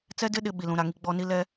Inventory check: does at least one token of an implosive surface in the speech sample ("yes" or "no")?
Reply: yes